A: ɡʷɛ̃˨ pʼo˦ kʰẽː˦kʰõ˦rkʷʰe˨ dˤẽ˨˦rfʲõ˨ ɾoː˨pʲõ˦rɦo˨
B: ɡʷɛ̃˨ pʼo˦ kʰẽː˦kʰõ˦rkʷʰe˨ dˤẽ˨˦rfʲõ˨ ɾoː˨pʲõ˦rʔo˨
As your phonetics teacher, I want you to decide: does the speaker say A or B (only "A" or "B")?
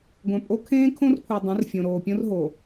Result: A